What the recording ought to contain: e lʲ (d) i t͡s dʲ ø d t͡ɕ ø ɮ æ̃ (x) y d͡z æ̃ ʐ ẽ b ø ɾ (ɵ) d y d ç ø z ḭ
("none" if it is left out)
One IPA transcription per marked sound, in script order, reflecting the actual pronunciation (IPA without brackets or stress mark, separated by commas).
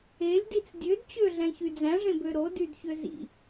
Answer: d, ç, o